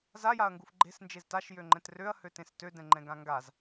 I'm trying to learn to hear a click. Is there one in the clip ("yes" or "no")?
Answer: yes